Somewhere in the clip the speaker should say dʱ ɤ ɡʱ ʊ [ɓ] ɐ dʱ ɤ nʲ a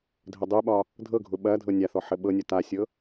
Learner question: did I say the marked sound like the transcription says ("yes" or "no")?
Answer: yes